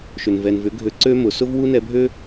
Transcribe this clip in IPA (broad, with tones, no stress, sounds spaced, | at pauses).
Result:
ʃ ʏ˨ n v ɛ˨ n v ʏ˨˦ ɡʱ ø˧ ǀ ø˦ m ʊ˨ s ʊ˦ v w u˦ n ɛ˧ bʱ ø˦